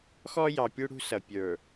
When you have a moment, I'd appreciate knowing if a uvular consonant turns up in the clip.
no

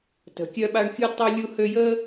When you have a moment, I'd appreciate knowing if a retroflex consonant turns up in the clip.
yes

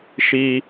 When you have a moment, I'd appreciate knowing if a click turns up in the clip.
no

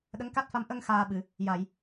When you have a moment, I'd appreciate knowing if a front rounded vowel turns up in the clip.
no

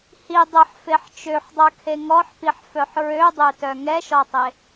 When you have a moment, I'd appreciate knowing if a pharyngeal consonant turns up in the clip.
yes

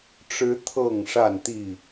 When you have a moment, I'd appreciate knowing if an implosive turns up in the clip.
no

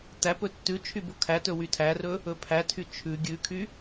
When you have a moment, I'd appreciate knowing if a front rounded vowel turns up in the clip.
yes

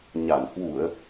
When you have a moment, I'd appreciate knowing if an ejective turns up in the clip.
no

